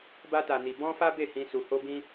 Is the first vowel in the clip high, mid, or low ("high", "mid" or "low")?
low